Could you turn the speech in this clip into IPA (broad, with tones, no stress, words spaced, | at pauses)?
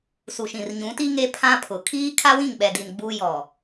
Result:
su˨ʃĩ˨r ɲũ˨˦ti˦ ŋe˦pʰã˦pʰʊ˨ kʰiː˦kʰa˦wĩ˦˨ŋ ɓɛ˨di˨n ɡ͡bu˦jɔ˨